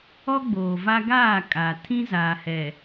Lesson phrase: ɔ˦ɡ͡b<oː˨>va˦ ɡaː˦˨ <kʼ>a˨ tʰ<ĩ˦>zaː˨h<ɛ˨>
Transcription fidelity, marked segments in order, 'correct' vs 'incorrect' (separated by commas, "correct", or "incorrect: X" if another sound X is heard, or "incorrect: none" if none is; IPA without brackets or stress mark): correct, correct, correct, correct